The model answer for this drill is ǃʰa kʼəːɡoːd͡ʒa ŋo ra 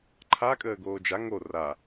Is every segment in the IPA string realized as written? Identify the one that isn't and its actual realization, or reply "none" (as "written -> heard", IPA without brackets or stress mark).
none